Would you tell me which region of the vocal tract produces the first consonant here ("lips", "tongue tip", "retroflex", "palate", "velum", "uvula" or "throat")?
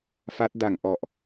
lips